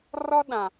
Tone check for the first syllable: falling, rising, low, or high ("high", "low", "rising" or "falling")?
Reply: high